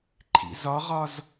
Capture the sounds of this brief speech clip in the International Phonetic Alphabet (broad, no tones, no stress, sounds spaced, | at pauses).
ǃʰ ḭ z ɒ ʁ ɒ z